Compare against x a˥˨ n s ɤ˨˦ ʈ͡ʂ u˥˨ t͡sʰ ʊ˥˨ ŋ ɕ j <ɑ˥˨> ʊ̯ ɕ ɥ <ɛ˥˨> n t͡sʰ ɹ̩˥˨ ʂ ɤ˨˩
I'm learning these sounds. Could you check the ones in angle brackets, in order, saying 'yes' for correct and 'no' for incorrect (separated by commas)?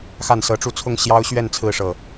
no, yes